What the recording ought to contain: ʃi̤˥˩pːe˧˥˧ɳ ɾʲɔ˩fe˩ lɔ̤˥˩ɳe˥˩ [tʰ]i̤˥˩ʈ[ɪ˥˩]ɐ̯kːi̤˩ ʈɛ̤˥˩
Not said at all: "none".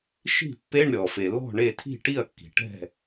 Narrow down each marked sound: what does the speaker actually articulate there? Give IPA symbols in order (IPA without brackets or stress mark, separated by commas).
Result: tʰ, i˥˩